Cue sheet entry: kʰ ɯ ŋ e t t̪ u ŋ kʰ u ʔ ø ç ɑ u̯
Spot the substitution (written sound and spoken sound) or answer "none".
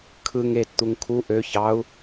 none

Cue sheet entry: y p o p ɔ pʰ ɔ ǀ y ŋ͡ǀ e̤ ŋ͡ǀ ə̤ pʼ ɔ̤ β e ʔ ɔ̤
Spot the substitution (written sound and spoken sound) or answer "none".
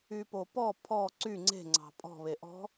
ə̤ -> ɑ̤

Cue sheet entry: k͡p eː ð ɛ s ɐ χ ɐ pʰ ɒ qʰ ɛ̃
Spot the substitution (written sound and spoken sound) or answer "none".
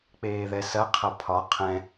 χ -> qʰ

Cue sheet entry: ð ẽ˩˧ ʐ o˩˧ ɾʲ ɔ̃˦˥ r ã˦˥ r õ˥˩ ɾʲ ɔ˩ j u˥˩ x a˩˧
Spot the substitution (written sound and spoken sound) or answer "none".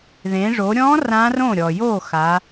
u˥˩ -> o˥˩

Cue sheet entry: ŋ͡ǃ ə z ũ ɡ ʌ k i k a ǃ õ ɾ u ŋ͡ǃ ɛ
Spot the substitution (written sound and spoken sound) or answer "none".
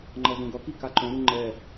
ə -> ʌ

